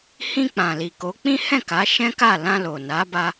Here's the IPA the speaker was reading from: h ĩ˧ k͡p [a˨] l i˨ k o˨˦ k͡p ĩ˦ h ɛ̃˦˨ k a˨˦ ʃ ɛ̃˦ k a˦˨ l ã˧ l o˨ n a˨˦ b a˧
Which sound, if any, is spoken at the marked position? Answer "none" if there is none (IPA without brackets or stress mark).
ã˨